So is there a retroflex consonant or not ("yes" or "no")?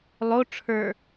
yes